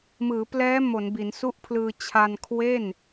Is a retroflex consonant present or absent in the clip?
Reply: absent